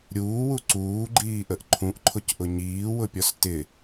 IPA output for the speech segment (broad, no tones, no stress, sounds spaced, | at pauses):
ɾʲ uː w u ǀ uː ɡ͡ǃ iː ʔ ə ʔ ǃʰ ũ ʔ ǃʰ ʊ c ʔ ʊ ɲ iː w ʊ pʲ ɔ s t ɪ